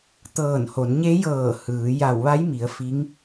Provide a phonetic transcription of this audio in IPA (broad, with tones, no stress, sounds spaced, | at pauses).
t̪ ɤː˧˩ n h o˩˧ n ɲ e˧˥ j ɤː˧˩ h ɯː˩˧ j a˧˩ w ʋ a˧˥ j m i˩˧ ə̯ f i˧˥ ŋ